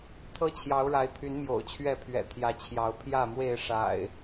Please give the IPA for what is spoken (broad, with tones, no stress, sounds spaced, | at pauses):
t̪ʰ ɤ˦ t͡ɕʰ j ɑ˨˦ ʊ̯ ɻ a˨˦ ɪ̯ t̪ʰ y˨˦ n m j o̰˨˩ ʊ̯ t͡ɕʰ ɥ ɛ˥˨ pʰ ɥ ɛ̰˨˩ t̪ʰ j ä˨˦ t͡ɕʰ j ɑ˨˦ ʊ̯ pʰ j ä˥˨ m w e˥˨ ɪ̯ ʂ a̰˨˩ ɪ̯